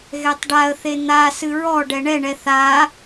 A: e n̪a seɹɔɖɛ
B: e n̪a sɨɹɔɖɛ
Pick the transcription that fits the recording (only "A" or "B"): B